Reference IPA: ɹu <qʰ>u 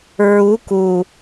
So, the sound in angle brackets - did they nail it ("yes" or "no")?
no